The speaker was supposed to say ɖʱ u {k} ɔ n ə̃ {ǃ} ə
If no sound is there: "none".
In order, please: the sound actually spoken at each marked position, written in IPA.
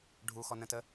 x, t

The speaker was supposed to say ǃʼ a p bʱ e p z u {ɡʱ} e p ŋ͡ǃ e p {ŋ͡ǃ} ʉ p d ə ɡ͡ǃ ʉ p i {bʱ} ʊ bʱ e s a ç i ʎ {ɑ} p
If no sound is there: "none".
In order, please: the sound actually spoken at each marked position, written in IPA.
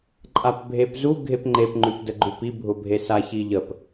ɡʱ, ŋ͡ǃ, bʱ, ə

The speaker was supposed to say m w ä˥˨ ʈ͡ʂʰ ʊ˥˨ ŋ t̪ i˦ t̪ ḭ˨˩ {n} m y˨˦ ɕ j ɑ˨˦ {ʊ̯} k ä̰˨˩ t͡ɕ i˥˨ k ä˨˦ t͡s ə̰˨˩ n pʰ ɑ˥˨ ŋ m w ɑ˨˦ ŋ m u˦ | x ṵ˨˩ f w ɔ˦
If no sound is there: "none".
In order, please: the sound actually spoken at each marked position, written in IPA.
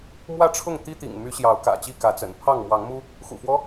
ŋ, ʊ̯

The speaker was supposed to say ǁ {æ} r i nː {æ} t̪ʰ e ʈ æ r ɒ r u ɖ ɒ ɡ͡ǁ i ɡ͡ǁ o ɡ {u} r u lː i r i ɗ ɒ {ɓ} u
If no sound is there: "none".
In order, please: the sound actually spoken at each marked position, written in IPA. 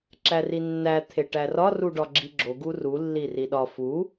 æ, æ, u, f

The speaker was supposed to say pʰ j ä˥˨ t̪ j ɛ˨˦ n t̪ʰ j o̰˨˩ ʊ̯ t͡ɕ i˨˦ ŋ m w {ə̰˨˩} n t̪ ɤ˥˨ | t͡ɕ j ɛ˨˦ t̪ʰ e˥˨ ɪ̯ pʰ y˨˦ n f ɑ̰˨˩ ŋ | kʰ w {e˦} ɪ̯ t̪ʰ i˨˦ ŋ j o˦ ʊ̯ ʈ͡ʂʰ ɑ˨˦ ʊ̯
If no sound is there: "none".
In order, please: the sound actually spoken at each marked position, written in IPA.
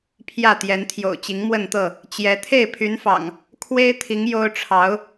ə˥˨, e˦

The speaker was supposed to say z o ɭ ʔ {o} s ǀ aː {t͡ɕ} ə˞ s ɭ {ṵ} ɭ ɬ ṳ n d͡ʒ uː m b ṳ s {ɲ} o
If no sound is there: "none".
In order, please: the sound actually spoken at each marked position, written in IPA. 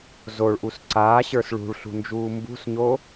u, ɕ, ṳ, ɲ

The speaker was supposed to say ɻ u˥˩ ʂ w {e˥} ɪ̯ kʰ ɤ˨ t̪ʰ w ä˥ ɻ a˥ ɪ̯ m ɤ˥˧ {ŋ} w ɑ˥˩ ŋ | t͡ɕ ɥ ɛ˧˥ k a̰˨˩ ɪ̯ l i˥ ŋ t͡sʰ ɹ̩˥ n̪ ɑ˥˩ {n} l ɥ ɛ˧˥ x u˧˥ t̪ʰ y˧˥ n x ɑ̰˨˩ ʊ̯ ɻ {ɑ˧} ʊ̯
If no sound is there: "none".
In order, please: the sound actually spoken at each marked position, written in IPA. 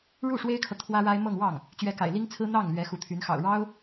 e˥, ŋ, ŋ, ɑ˥

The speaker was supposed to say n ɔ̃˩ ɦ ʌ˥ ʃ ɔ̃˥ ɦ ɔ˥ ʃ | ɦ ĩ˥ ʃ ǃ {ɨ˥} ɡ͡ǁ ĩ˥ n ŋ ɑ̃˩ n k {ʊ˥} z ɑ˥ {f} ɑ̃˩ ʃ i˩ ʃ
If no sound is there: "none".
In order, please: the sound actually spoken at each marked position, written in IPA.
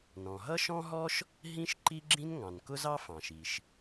i˥, ʊ˥, f

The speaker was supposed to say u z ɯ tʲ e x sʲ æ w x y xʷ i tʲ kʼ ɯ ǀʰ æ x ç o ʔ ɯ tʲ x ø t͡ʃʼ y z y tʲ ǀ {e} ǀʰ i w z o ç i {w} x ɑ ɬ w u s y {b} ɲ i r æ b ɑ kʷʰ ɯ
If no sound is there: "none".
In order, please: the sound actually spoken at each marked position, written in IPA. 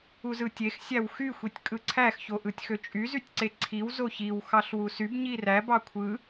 e, w, b

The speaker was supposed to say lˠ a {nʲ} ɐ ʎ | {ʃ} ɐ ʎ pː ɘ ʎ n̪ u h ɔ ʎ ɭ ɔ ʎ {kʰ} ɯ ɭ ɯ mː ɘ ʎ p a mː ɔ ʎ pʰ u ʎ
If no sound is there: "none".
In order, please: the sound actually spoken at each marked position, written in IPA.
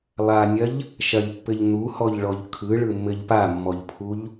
nʲ, ʃ, kʰ

